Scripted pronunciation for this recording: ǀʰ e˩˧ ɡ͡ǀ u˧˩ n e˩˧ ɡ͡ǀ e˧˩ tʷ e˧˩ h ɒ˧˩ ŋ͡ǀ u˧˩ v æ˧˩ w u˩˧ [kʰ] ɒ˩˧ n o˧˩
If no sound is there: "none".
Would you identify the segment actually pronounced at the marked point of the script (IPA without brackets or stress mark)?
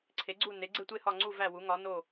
ŋ